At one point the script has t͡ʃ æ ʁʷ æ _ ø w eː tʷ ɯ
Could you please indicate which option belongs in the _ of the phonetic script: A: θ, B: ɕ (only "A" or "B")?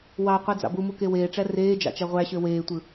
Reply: B